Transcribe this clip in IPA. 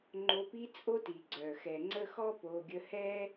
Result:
ŋ͡ǃ o˧ p i˦ t͡sʼ o˦ t i˨ ɡ͡ǀ œ˨ x ɛ˨ ŋ͡ǀ ə˧ x ɔ˦ p o˧ ɡʲ ə˦ h ɛ˦

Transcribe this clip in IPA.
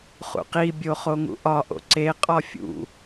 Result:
χ ṵ q i bʲ o χ o ŋ ṵ ʔ ɒ ʔ o̰ ǀ e qʼ ɒ fʲ ṵ

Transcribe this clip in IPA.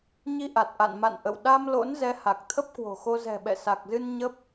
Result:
ɲ i˧ ʔ a˨˩ t̚ ʔ a̰˧˨ n m a̰˧˨ n ʔ ə̰˧˨ w ɗ a˧ m l o̰˧˥ n z ɛ˨˦ h a˨˩ k̚ t̪ʰ ə˦˥ p̚ k w o̤˨˩ x o˧ z ɛ̤˨˩ ɓ ɛ̰˧˨ s a˨˩ k̚ z ɨ˧ n ɲ ə˦˥ p̚

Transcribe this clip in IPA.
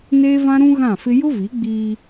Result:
n eː˦ v ã˦ ɾ ũ˦ ɣ ã˦˨ f ɪ˦ j ʊ˦ v i˨˦ ɡ͡b iː˦

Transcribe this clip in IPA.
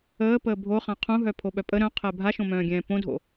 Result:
əː p əː bʱ o χ ã qʰ ũ ɦ œ pʰ o ɓ œ pʼ ə ɾ œ̃ qʰ ɛ bʱ a ʃ õ m œ̃ː ɡʲ ɛ̃ː p õ dʱ o̰

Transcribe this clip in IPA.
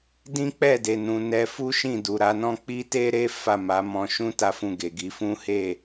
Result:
d ĩ˦ k͡p ɛ˦˨ d e˨ n ũ˨˦ n ɛ˧ f u˦ ʃ ĩ˦˨ d u˨ ɾ a˨˦ n ɔ̃˦ k͡p i˦ t e˦ ɾ e˦ f a˦˨ m a˨˦ m ɔ̃˧ ʃ ũ˦ t a˦ f ũ˦˨ ɡ e˨ ɡ i˧ f ũ˦ h e˦˨

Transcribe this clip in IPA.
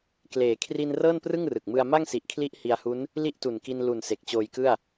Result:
k l eː˩˦ kʰ r i˧ n r ɤː˥˩ n p r ɯ˥˩ ŋ r ɯ˨˩ k̚ m ɯ˧ a̯ m a˥˩ ŋ s i˨˩ ʔ kʰ l i˦˥ ʔ h i˧ a̯ h u˦˥ n | l i˥˩ ʔ t u˨˩ n k i˧ n l u˨˩ n s e˨˩ k̚ t͡ɕ oː˧ j k ɯ˥˩ a̯

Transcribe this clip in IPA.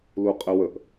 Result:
l u qʼ ɘ w ə ʔ

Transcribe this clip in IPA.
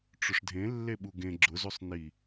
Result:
ʈ͡ʂ ʊ ʂ dʱ ẽ lː e ɓ u ɡ ẽ ɡ͡ǁ ʊ z o sˤ n i

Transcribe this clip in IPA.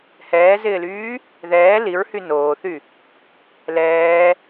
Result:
h ɛː z ɪː l yː | ð ɛː l i ɹ h y n oː θ y | l ɛː

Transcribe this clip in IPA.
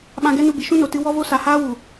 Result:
ɓ ã˧ ɡ ɛ˦ n u˧ b i˨ ʃ ũ˦ n o˨ t ɨ˧ w ɔ˦ v o˦ s a˨ h aː˦ w u˨

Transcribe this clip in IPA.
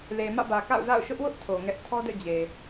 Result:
l e˨ m ä̰˦˨ b ä˨ k a̰˦˨ ʊ̯ z a̰˦˨ ʊ̯ ʃ ʊ˦ ʔ w ʊ˦ ʔ tʰ o˨ ŋ ɛ˦ ʔ tʰ ɔ˦ d ɛ̰˦˨ d͡ʑ e˨

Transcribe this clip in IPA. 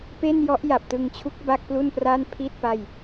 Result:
p e˥˩ n j ɔ˦˥ ʔ j a˨˩ p̚ t ɯ˧ ŋ t͡ɕʰ u˦˥ k̚ b a˥˩ k̚ p l u˥˩ n p r a˥˩ n pʰ i˥˩ t̚ p a˥˩ j

